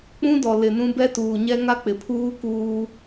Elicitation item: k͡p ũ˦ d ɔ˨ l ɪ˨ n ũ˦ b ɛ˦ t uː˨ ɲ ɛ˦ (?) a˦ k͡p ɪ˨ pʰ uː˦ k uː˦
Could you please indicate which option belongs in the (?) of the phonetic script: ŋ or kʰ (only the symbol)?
ŋ